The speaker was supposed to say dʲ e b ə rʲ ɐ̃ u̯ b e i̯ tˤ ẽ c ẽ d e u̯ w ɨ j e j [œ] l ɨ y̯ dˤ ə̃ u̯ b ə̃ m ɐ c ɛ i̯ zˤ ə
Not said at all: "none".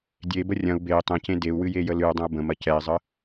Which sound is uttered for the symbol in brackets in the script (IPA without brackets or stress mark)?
ə